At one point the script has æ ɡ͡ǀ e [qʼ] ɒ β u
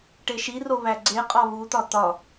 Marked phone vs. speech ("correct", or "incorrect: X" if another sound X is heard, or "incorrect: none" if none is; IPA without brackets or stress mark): correct